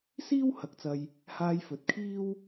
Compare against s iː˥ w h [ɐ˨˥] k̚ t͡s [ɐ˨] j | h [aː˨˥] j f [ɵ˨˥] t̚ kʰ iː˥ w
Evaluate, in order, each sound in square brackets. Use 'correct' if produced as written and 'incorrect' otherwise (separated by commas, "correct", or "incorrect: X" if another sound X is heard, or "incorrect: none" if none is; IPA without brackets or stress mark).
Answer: correct, incorrect: ɐ˧, incorrect: aː˧, correct